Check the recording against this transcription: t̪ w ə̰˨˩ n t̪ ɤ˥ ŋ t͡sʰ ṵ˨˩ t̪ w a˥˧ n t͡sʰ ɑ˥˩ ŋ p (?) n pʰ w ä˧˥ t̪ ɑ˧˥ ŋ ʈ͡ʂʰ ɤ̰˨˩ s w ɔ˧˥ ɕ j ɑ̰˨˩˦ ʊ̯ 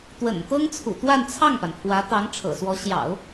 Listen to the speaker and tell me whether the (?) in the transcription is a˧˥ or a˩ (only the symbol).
a˩